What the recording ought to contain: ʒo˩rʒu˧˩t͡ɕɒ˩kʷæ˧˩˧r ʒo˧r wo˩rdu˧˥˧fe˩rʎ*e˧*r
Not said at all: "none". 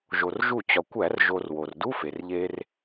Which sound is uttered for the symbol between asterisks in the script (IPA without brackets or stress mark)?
e˧